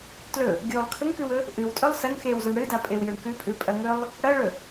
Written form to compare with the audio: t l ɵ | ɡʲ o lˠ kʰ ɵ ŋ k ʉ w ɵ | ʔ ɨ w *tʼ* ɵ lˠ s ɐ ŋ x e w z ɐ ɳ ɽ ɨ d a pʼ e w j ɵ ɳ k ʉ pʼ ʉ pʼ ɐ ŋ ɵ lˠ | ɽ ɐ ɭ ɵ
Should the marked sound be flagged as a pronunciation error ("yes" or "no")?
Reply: no